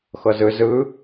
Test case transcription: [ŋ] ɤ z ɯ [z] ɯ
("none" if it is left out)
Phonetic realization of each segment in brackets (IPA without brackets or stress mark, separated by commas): x, z